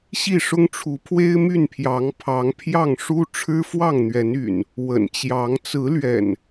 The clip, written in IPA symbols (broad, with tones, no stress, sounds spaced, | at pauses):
ɕ i˥˨ ʂ ʊ˦ ŋ ʈ͡ʂʰ u˨˦ pʰ w e˦ ɪ̯ m y˥˨ n pʰ j ɑ˨˦ ŋ pʰ ɑ˨˦ ŋ pʰ j ɑ˥˨ ŋ ʂ u˦ ʈ͡ʂʰ ɻ̩˦ f w ɑ˥˨ ŋ n̪ ɥ ɛ˨˦ n y̰˨˩ n | w ə̰˨˩ n t͡ɕ j ɑ˨˦ ŋ t͡s ɹ̩˨˦ l ɥ ɛ̰˨˩ n